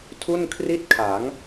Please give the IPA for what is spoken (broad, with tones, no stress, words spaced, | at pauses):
tʰu˥˩nkʰri˥˩t̚kʰa˩˦ŋ